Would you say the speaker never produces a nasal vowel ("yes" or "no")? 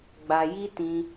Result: no